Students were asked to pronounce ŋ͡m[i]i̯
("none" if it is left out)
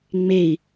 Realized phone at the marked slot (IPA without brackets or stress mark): e